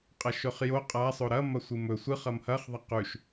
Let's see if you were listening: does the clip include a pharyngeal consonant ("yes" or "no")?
no